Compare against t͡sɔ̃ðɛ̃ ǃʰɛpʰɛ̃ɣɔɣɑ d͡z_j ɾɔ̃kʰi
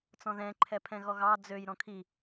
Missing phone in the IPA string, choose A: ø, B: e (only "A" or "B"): A